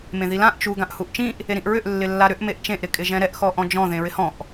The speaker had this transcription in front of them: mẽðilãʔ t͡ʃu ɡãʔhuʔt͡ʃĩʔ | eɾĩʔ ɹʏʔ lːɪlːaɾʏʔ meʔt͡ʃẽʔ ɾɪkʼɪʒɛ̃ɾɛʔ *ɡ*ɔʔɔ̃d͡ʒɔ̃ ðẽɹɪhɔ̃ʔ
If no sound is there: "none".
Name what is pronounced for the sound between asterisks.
x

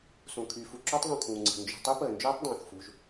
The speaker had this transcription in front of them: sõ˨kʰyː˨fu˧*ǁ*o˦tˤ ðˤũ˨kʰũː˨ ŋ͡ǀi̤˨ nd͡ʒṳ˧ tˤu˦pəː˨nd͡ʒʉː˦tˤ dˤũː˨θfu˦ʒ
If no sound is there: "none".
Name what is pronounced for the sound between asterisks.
ǁ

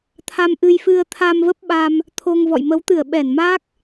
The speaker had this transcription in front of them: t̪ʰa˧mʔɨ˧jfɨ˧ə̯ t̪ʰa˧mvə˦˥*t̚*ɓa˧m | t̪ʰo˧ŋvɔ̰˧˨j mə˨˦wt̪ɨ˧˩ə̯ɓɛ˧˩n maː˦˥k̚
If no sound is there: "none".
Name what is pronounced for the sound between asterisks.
p̚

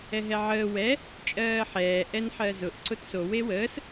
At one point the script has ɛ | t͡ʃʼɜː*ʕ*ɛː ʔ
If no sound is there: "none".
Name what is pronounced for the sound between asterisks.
ħ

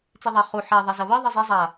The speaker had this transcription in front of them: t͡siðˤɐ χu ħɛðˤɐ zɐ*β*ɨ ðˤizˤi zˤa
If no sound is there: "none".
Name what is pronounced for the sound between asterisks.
β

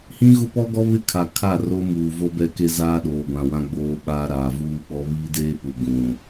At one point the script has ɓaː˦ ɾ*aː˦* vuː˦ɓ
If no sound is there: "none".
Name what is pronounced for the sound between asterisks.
aː˨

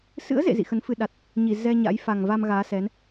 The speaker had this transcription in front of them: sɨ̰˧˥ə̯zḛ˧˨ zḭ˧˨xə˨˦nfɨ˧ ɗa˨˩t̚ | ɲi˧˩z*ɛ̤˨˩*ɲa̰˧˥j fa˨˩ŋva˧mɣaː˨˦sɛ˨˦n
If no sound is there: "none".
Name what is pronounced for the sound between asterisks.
ɛ˧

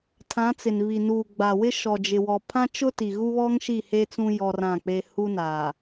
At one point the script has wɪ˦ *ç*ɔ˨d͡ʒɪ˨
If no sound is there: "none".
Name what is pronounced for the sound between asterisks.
ʃ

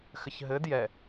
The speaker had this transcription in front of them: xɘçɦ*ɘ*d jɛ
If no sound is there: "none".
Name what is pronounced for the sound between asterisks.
ɘ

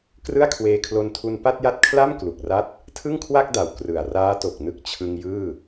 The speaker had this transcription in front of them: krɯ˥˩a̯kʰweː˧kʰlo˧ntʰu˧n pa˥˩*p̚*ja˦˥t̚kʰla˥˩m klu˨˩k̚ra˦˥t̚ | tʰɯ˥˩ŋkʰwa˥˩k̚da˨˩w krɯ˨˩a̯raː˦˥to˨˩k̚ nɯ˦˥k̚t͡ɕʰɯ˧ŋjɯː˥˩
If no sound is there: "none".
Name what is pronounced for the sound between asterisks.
t̚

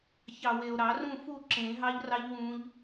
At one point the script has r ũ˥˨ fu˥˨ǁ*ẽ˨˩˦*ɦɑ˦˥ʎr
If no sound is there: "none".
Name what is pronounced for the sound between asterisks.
ẽ˨˩˦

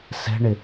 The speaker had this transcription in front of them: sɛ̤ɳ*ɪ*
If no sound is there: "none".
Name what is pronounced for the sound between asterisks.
ɪ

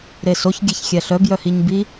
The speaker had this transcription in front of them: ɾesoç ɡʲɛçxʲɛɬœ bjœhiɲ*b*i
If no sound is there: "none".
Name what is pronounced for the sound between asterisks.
b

